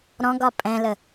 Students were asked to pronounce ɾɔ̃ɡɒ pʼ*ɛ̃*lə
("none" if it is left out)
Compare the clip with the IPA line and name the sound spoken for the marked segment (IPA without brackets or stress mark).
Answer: ɛ̃